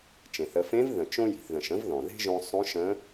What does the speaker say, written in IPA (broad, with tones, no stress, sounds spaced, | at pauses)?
t͡ʃ ẽ˩ θ ə˩˧ f ẽ˧˥ v ð ə̃˩ t͡ʃ õ˧ j i̤˩ θ ð ə̃˩ ʃ ə̃˧˥ v ð ɔ̃˩ ð e̤˥ ʒ õ˧ sˤ õ˧˥ ʃ ə̃˧˥